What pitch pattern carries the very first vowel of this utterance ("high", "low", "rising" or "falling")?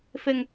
low